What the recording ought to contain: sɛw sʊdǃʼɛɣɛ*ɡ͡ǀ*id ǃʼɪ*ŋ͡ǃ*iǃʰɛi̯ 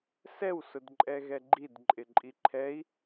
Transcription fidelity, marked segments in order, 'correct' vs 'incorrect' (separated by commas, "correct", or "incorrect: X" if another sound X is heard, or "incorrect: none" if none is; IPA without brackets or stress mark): incorrect: ɡ͡ǃ, incorrect: ǃʼ